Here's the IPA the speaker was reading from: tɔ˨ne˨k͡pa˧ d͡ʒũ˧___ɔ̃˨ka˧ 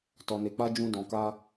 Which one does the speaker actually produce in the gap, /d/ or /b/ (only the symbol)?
d